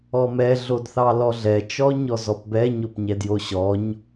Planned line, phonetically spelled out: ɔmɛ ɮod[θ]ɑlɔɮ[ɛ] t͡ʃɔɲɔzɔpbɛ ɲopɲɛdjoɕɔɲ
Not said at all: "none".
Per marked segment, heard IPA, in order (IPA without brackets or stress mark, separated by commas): θ, ɛ